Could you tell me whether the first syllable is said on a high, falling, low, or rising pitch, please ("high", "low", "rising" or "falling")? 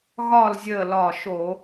falling